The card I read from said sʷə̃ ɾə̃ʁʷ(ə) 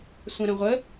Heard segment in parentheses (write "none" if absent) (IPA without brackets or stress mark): ə